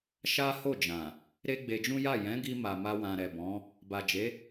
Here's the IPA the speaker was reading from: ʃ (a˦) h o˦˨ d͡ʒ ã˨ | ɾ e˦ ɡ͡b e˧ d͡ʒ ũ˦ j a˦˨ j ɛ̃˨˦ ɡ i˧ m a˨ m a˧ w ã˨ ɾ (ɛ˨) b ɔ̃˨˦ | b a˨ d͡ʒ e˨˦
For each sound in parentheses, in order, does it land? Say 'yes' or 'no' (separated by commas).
yes, yes